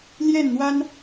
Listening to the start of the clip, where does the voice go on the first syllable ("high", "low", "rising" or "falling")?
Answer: falling